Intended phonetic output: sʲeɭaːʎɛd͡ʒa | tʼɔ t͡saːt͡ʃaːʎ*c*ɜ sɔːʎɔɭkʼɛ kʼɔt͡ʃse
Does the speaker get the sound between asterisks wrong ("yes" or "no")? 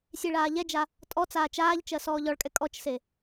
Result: yes